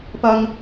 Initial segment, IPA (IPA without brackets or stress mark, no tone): p